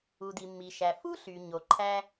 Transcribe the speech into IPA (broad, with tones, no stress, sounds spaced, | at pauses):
u˩ d i˩ mː i˩ ʃ æ˩ f u˥ ɬ y˩ ɲ o˩ ǃʰ æ˥